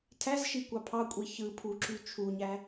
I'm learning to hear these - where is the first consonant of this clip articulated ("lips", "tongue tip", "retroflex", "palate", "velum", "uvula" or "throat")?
tongue tip